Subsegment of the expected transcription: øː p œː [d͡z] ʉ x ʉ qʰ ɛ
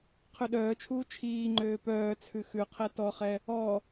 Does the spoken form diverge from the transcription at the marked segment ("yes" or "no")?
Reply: yes